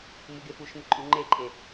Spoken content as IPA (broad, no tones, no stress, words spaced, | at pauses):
muɡefuʃmɪ ǃʼuŋ͡ǃeǃʼe